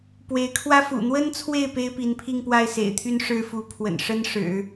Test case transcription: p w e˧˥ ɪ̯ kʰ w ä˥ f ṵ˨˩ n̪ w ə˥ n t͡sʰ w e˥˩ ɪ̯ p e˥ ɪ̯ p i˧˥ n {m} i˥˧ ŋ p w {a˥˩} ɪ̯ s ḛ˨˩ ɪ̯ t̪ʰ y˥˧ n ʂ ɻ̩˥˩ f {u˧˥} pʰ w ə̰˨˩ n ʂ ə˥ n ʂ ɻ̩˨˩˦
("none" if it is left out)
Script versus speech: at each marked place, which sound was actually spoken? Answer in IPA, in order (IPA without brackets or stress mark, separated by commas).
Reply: pʰ, a˥˩, u˧˥